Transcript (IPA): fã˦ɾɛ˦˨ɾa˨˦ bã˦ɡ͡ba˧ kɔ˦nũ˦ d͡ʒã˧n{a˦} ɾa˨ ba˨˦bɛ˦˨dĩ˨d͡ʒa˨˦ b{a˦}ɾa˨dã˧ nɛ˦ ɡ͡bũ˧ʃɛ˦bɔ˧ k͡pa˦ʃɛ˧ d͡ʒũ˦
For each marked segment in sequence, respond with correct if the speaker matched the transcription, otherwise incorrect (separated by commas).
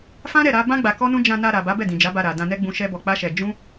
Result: incorrect, incorrect